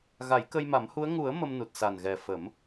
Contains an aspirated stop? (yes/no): no